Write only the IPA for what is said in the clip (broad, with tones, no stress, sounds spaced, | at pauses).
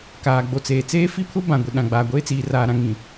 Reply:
k aː˨ ɡ͡b o˨ t͡s eː˨ t͡s eː˦ f i˦ pʰ ʊ˦ b ã˨ ɡʷ i˨ ɗ ã˨ ɡ͡b aː˨ ɡʷ eː˦ t͡s iː˨ r aː˨ ɾ ã˨ ŋ ĩ˨